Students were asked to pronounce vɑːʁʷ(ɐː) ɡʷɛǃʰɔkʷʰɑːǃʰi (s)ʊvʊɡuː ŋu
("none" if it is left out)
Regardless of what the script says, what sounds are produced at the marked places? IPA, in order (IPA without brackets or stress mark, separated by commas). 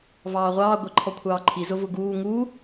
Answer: ɑː, z